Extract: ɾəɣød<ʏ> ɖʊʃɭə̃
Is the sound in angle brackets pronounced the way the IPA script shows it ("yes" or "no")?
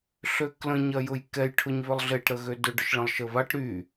yes